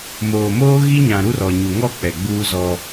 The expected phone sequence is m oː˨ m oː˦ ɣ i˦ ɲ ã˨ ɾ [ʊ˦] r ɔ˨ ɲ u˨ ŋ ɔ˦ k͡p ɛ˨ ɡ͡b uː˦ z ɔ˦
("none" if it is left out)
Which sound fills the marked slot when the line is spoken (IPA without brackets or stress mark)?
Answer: u˦